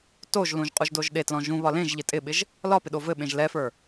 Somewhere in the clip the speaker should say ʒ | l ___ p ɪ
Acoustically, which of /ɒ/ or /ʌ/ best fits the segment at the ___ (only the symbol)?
ɒ